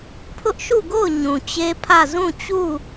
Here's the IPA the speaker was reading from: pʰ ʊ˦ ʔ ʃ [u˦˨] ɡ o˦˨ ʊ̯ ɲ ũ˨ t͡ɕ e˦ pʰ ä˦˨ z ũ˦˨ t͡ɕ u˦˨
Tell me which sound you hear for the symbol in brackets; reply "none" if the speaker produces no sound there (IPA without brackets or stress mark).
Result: u˦˨